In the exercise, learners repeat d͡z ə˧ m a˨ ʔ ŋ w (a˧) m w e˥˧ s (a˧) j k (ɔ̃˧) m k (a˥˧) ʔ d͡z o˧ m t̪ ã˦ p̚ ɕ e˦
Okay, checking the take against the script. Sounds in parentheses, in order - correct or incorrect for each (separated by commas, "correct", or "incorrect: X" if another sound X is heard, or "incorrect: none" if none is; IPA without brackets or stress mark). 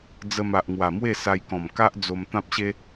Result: incorrect: a˨˩, correct, incorrect: ɔ̃˨˩, incorrect: a˦